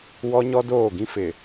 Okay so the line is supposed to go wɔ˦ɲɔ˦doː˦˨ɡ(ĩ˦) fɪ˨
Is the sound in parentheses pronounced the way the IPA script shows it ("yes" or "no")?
yes